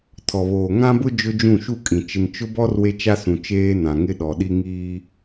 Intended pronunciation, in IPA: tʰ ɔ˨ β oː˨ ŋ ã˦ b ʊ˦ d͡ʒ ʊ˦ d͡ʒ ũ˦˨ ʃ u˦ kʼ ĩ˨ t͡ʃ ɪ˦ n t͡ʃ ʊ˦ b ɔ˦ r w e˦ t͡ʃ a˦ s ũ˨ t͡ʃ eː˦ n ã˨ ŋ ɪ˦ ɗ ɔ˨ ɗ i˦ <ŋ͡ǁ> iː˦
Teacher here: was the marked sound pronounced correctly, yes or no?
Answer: no